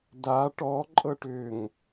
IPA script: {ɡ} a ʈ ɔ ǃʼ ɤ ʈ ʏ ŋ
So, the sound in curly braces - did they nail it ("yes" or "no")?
no